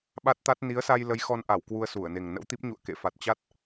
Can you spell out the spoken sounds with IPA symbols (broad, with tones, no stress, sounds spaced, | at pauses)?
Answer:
ɓ a˦˥ t̚ t̪ a˦˥ t̚ n i˨˦ ə̯ s a˧ j l ə˨˦ j x ɔ˧ n ʔ a˧˩ w k w u˧ ə̯ s u˧˩ ə̯ n e˨˩ ŋ n ə̰˧˥ w t̪ i˦˥ p̚ ɲ ṵ˧˨ ə̯ k ḛ˧˨ f a˨˩ t̚ t͡ɕ a˦˥ t̚